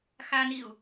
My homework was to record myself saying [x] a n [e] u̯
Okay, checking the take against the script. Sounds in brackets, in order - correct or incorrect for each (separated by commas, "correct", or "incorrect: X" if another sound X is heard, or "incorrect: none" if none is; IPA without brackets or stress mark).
correct, incorrect: i